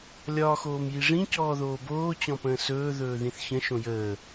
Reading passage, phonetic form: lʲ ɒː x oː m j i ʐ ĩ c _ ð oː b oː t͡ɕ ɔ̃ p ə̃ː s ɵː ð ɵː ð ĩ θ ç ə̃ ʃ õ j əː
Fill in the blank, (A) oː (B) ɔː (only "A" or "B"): B